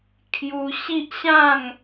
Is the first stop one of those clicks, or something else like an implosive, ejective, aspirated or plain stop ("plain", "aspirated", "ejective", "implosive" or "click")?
aspirated